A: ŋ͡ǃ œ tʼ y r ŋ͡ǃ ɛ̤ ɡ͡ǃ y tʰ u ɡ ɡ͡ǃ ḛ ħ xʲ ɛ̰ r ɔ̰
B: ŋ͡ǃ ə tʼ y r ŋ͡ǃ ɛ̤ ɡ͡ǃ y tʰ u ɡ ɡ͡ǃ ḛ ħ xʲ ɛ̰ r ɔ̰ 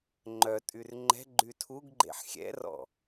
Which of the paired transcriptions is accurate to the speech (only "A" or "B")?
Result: A